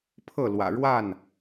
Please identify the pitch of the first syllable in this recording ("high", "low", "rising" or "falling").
falling